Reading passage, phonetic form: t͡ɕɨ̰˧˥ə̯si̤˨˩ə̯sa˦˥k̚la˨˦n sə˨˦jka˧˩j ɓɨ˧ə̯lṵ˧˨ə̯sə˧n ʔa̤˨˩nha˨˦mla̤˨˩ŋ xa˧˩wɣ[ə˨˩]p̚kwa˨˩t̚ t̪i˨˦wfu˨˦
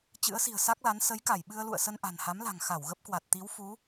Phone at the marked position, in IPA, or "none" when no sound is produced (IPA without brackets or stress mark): ə˦˥